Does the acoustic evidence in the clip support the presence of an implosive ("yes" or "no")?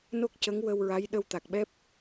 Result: yes